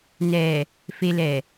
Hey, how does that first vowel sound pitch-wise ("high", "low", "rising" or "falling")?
low